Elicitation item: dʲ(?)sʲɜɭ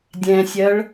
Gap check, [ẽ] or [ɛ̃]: ɛ̃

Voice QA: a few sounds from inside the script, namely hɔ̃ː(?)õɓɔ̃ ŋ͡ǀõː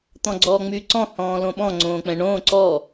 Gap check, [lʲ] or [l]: l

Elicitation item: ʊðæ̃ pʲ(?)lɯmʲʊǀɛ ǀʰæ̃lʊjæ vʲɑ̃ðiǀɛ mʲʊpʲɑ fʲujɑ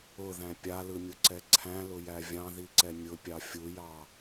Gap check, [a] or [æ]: a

